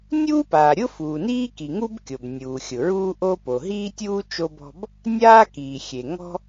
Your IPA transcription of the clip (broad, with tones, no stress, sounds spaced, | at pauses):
nʲ uː˥ p aː˩ ɾʲ ʊ˥ f uː˩ n iː˥ k i˩ ŋ u˥ b kʲ o˩ b nʲ uː˩ xʲ ʊ˩ ɹ uː˥ ʔ o˥ p o˩ ɦ iː˥ tʲ uː˥ t͡ʃ o˥ b ɔ̤˥ b | nʲ aː˥ k iː˩ xʲ e˩ ŋ ɔ̤˥